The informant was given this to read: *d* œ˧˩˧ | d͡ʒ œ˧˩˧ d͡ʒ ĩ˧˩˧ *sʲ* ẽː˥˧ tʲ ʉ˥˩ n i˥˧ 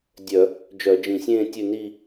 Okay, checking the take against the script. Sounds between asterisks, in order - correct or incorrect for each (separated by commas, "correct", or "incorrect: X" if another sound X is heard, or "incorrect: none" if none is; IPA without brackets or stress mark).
incorrect: dʲ, correct